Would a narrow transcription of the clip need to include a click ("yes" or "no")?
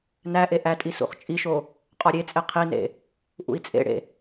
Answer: no